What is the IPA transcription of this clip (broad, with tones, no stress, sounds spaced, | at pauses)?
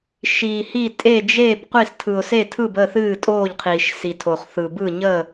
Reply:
ʃ iː˧ h i˥˧ tʼ e˥˧ d͡ʒ eː˥˧ b qʷ i˥˧ s tʰ ɯ˧ ʊ̯ s e˥˧ tʰ ɯ˥˧ b ə˥˧ θ ɨː˥˧ tʼ oː˥˧ ʎ qʰ iː˧ ʃ s i˧ tʰ o˧ χ θ ɯ˧ b ɯ˥˧ ɲ ə˥˧